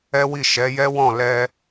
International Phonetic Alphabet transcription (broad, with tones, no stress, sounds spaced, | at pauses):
ɛ˦ w i˦˨ ʃ ɛ˨˦ j ɛ˦ w ɔ̃˦˨ l ɛ˧